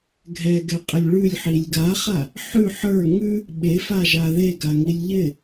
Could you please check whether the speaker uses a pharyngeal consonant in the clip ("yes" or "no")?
yes